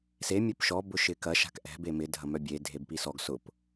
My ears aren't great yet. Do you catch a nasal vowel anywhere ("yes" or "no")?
no